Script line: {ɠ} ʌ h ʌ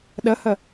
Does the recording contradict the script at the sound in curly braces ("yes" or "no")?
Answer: yes